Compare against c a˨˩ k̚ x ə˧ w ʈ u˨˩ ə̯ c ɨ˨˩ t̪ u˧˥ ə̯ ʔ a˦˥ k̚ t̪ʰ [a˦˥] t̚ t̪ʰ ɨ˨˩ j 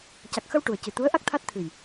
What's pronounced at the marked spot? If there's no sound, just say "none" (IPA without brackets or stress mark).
a˦˥